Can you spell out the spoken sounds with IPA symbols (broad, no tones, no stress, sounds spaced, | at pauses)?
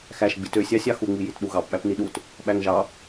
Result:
x æ ʃ ɡ͡b i t ø sʲ ɑ sʲ ɑ x u ŋ͡m i j i t ɗ u ɣ ɑ p ɓ æ p n i ɗ u t | ɓ æ ŋ ʒ ɑ